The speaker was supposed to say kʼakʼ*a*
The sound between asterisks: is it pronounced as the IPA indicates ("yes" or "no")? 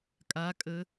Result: no